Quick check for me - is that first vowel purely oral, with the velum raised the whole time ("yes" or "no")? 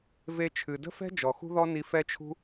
yes